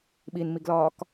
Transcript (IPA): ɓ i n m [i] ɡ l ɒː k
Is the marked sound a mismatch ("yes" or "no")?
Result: no